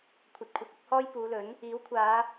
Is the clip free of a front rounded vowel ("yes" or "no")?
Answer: yes